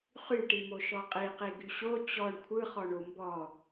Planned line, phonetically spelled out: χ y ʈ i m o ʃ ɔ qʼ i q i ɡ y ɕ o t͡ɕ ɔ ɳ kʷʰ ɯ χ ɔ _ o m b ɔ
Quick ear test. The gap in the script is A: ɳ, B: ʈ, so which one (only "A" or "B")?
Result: A